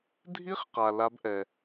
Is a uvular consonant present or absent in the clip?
present